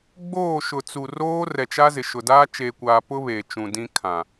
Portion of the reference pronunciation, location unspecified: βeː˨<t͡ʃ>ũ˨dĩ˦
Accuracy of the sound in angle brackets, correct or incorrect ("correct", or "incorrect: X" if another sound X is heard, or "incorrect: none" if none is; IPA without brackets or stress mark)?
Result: correct